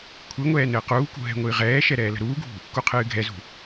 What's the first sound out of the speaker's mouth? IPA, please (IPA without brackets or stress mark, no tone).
kʷʰ